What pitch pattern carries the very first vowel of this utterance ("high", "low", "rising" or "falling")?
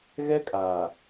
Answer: high